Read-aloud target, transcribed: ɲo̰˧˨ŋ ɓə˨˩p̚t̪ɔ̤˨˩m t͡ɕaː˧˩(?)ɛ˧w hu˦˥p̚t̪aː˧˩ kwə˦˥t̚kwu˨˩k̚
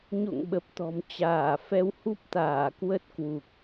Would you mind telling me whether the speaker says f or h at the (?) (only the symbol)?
f